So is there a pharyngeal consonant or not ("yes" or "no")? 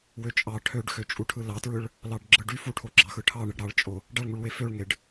no